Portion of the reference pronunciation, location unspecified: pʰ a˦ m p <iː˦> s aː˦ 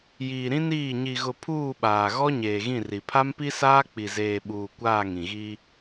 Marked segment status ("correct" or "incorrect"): incorrect